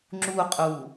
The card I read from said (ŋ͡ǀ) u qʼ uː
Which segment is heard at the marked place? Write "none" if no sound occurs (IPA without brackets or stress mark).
ŋ͡ǁ